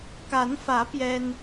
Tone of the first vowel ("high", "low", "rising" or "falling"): rising